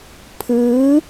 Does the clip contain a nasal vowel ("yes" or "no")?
no